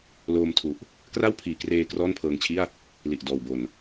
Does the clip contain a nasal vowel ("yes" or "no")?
no